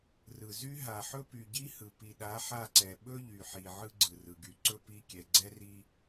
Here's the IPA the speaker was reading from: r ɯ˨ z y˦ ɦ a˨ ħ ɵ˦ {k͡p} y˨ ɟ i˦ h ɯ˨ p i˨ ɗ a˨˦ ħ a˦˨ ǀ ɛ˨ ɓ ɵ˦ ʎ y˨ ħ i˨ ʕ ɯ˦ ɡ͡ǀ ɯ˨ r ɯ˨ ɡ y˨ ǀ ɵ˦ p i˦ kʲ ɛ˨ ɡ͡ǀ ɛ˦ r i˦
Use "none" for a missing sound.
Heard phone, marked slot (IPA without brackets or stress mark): p